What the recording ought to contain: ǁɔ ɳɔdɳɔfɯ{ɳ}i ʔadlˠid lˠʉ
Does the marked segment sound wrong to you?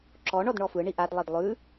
no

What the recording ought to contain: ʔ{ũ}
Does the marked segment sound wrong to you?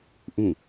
no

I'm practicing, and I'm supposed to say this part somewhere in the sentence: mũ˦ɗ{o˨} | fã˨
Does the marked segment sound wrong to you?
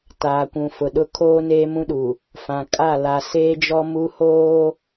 yes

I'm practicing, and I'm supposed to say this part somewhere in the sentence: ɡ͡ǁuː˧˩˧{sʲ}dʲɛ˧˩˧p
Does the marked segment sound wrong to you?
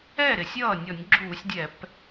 no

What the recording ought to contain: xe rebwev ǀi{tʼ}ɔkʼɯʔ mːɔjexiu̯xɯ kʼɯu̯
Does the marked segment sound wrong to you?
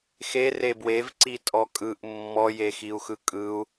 no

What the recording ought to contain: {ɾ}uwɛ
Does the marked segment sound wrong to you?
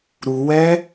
no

